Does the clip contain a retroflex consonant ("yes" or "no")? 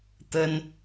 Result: no